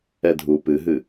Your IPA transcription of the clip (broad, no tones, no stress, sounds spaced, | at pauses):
ɛ dʱ u p ɨ ɦ ɨ